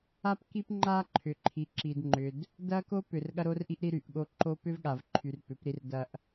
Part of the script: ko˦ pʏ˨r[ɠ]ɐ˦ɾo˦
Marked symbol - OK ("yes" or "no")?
yes